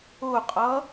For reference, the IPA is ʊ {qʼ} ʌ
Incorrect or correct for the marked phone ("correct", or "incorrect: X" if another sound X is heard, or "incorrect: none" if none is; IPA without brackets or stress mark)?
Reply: correct